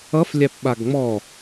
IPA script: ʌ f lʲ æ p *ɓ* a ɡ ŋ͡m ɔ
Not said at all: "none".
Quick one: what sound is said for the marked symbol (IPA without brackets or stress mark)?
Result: ɓ